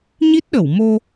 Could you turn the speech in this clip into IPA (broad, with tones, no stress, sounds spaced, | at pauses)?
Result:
ɲ i˦˥ t̚ ɗ ə˧˩ w m o˧